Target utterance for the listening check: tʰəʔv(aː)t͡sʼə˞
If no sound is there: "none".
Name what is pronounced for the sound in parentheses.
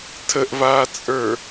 aː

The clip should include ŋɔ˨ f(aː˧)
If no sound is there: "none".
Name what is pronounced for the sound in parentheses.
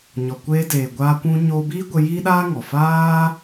aː˦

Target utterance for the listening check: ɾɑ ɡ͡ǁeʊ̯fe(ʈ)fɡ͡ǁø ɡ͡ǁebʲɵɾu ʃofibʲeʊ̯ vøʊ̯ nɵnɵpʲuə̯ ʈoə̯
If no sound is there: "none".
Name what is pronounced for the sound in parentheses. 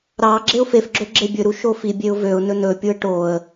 none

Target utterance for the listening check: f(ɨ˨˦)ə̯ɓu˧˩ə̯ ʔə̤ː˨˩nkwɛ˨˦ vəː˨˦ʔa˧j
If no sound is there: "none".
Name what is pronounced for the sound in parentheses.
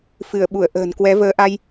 ɨ˧˩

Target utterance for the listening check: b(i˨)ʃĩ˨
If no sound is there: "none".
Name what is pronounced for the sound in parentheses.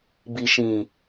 i˨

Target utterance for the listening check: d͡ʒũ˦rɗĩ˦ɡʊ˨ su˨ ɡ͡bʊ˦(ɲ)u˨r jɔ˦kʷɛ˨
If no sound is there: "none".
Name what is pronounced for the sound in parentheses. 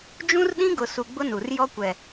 n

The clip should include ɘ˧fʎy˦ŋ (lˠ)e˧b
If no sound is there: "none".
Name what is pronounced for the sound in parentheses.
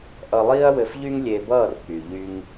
lʲ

